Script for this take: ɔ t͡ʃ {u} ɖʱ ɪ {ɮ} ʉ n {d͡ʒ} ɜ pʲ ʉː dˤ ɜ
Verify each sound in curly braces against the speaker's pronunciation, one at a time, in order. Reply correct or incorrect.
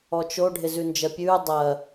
incorrect, incorrect, correct

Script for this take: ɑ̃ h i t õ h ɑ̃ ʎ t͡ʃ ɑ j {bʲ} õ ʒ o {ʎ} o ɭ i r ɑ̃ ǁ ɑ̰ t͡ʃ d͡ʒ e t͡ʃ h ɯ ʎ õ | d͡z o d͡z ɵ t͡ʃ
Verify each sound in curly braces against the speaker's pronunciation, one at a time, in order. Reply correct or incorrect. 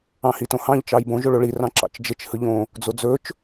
incorrect, incorrect

